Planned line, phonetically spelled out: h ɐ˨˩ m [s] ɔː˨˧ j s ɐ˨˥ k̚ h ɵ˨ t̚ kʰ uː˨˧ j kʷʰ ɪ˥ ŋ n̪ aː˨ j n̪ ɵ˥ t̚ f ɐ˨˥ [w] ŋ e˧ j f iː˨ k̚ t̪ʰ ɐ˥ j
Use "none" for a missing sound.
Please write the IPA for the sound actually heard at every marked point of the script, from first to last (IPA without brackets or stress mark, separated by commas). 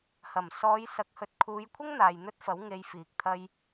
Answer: s, w